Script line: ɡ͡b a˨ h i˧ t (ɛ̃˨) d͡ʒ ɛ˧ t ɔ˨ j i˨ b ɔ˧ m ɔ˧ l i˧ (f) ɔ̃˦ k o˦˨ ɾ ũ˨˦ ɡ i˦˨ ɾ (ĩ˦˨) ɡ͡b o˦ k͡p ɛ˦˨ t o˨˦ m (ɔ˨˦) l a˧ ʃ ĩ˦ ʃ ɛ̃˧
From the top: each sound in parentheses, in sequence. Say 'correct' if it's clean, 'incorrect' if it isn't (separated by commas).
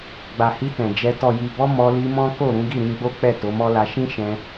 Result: correct, incorrect, incorrect, incorrect